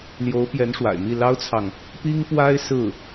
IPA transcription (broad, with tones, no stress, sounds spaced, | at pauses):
l j o˧˥ ʊ̯ p j ɛ˧˥ n ʂ w a̰˨˩ ɪ̯ m i˥˩ l ɑ˥ ʊ̯ t͡sʰ ɑ˨ ŋ | p i˥ ŋ p w a˥ ɪ̯ s ɹ̩˥˩